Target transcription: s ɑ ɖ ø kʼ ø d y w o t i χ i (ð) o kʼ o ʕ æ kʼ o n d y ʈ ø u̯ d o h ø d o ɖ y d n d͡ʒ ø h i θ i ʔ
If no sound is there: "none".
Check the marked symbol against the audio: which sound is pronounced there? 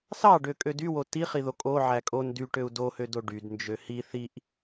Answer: ð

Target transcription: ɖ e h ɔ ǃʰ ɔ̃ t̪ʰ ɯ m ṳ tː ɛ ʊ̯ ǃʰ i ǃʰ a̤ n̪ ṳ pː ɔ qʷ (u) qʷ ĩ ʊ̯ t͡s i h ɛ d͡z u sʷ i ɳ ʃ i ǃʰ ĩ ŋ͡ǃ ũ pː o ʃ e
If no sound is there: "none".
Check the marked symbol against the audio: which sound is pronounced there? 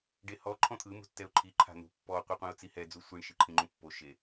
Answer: ɯ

